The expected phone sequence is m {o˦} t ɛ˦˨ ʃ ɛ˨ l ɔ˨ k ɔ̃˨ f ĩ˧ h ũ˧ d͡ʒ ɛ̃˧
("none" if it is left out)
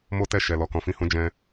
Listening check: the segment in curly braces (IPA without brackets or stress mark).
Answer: o˦